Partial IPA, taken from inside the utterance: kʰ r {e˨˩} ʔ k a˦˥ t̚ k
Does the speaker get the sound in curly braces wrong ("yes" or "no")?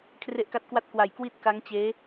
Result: yes